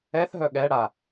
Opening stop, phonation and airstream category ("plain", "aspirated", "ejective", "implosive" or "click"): implosive